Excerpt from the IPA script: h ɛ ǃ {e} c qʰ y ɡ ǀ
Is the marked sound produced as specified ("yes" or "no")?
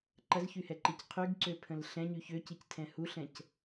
no